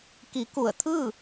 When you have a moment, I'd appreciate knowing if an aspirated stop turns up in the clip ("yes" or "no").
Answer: yes